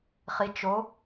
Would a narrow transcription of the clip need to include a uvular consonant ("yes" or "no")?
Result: yes